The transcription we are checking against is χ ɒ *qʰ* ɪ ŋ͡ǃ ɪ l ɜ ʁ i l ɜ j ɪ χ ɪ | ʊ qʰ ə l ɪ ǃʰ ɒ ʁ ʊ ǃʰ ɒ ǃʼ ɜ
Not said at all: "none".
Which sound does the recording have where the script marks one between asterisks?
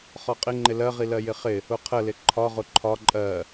qʼ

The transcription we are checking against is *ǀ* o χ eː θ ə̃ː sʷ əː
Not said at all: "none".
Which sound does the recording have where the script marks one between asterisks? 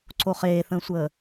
ǀ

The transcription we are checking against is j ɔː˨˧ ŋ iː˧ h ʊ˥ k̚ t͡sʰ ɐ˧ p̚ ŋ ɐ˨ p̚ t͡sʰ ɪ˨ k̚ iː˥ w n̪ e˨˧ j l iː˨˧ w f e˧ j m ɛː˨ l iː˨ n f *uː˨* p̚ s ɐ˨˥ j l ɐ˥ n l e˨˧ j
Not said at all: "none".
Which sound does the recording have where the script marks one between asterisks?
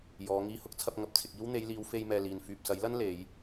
yː˨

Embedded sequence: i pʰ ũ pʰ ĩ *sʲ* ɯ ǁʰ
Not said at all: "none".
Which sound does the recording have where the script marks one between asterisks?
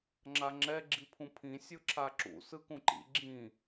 sʲ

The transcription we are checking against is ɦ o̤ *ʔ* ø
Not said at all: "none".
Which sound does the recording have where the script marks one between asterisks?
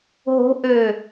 ʔ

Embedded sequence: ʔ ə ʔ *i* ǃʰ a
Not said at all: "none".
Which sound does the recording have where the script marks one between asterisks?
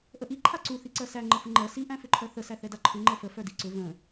i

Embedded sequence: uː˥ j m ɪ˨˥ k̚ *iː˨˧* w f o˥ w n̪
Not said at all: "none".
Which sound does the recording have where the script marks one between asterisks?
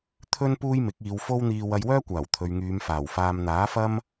iː˨˧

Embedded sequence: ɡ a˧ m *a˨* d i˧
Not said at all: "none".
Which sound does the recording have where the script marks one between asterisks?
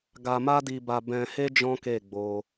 a˦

